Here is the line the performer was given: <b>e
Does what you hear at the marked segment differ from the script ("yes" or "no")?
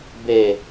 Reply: no